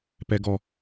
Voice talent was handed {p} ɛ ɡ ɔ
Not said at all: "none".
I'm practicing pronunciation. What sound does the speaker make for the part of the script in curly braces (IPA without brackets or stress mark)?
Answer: p